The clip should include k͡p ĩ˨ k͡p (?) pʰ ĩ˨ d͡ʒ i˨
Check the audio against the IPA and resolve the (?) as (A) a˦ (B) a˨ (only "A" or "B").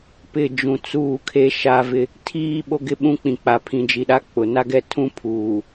B